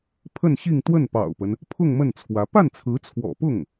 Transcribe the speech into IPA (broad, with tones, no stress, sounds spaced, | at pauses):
pʰ ə˥˧ n ɕ i˥˧ ŋ t̪ w ə˥˩ n p ɑ̰˨˩ ʊ̯ p ə˦ n | pʰ ʊ˥˧ ŋ m ə˥˩ n t͡sʰ w ä˧˥ p a˥˩ n t͡sʰ ɹ̩˧˥ t͡sʰ w ɔ̰˨˩ p ʊ˥˩ ŋ